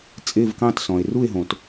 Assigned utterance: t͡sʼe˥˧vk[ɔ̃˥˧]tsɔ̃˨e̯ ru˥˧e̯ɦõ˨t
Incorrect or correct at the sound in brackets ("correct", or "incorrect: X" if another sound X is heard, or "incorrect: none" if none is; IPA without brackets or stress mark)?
incorrect: ɑ̃˥˧